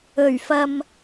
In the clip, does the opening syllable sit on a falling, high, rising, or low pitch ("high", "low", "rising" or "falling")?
low